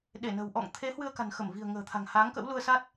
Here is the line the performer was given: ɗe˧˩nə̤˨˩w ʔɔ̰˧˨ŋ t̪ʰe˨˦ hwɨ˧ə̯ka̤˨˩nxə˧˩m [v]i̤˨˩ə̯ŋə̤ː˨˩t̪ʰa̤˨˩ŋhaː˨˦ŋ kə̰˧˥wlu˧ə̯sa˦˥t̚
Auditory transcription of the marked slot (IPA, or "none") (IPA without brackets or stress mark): v